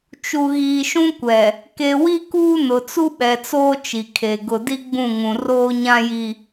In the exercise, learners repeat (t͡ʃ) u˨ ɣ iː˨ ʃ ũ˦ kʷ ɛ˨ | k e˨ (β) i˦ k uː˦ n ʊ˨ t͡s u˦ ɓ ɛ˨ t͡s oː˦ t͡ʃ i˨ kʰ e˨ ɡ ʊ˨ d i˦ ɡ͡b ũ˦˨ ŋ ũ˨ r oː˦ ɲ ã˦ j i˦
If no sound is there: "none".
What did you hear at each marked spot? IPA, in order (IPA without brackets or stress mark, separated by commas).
t͡ʃ, w